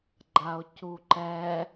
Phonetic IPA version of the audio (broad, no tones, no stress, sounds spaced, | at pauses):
ɡ͡ǃ a o̯ c u ǃ ɛ